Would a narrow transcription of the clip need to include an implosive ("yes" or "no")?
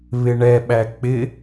yes